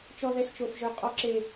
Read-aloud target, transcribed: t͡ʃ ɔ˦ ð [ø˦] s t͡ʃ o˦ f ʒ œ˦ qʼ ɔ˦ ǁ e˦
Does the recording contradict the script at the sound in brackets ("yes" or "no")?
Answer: yes